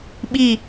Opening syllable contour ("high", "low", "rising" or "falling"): falling